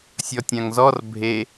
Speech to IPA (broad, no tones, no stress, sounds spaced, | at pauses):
sʲ ɔ tʲ ã ŋ z ɔ r bʱ e